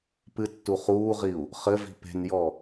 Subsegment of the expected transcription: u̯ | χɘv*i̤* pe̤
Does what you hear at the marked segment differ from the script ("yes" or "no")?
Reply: no